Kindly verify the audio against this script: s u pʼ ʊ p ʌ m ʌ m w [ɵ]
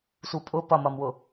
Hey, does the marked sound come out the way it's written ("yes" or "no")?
no